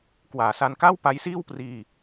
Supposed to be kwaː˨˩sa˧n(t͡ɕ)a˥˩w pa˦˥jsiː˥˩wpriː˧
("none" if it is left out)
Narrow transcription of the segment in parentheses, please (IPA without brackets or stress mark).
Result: k